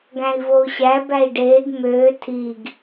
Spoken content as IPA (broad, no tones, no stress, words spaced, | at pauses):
ɡæ̃i̯vou̯ɕæ bæi̯ɖeːɡ møː tʰiɡ